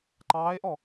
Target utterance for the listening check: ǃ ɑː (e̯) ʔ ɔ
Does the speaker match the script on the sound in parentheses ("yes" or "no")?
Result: yes